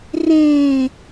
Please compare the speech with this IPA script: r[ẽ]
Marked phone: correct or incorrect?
correct